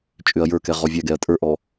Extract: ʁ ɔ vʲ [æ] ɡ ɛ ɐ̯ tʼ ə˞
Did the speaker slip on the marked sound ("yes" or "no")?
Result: no